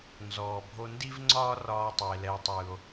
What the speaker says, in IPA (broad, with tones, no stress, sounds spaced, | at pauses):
n z ɔː˩ bʱ o˧ n d i˥ v ŋ͡ǀ ɒː˥ r ɒː˥ tˤ o˩ e̯ l ɛː˧ tˤ w ɯ˩ o̯